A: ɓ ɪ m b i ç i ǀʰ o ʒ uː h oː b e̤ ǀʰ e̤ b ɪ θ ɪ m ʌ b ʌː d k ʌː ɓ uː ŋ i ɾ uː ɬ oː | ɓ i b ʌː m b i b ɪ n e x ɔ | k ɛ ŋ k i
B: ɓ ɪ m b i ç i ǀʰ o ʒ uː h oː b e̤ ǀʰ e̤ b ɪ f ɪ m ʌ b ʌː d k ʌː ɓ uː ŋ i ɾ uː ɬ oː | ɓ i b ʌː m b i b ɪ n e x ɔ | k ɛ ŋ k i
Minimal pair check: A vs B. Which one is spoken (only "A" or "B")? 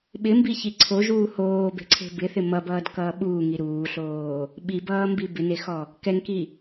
A